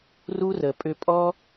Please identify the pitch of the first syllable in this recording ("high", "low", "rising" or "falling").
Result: high